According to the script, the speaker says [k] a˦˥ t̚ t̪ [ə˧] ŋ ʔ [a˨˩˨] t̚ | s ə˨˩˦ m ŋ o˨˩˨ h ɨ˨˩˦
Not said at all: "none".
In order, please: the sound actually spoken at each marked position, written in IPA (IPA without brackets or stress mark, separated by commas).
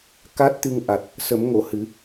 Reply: k, ɨ˧, a˨˩